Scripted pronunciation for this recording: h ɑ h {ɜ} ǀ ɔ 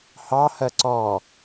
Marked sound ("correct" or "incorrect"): correct